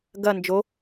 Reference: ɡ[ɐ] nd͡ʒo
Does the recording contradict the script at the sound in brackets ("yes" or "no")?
no